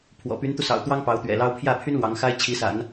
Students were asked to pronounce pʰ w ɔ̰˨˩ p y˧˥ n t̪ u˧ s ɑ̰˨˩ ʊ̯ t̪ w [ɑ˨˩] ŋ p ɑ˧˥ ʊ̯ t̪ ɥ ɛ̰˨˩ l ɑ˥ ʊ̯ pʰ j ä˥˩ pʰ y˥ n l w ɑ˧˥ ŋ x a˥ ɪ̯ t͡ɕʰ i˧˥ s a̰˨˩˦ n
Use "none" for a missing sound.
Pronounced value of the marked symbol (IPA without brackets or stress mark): ɑ˥